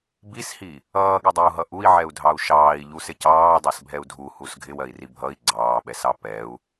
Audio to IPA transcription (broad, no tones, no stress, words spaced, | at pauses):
bishi | ʌːɠɪdˤiu̯ɦʌ ʔui̯ʕɛu̯dʱɑu̯ ʃɑːi̯ʎusɪ cɑːdˤɛsbʱɛu̯ dʱuhus ɡʱɪwɜi̯ri bʱʌi̯ ɡ͡ǀɑːɓɛsɑ pɛu̯